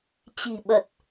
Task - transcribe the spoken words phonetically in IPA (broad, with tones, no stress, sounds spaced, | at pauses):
t͡ɕ i̤˨˩ ɓ ə˨˩ t̚